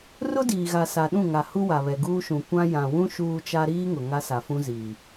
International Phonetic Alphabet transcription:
r ʊ˦ d iː˨ ɣ a˨ s a˨ ɗ ũ˦˨ ŋ a˨ h u˦ w a˨ β ɛ˨ ɡ uː˦ ʃ ũ˨ kʷ ã˦ j ã˨ w ũ˦ ʃ uː˦ t͡ʃ a˦ ɾ iː˦ ŋ ʊ˨ ŋ a˦ s a˨ f ũ˦ z iː˨

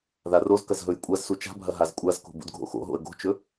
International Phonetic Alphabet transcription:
ð a r o z k ɐ z ɦ ɵ j kʷʼ a z s u t͡ʃ a̤ bʱ ɐ ɦ a z kʷʼ a z k o̤ b ṵ d ɡʱ o̰ x o̰ ɦ o̰ ə̯ ɡ o̤ t͡ʃ ɵ

